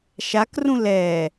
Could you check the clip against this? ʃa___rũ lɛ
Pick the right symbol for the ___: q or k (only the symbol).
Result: k